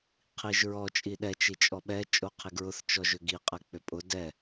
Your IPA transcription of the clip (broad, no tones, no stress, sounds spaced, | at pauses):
qʰ i ʒ ɹ ɔ t͡ʃʼ i ɗ ɛ t͡ʃ i t͡ʃʼ ɔ ɓ ɛ t͡ʃʼ o qʰ i ɡ ɹ ʊ θ t͡ʃ ɔ ʒ ʏ ɡ i qʼ ɛ k͡p ʏ pʼ ʊ d ɛ